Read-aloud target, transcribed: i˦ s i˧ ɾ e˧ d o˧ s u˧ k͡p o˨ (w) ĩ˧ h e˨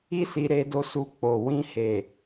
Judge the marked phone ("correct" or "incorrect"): correct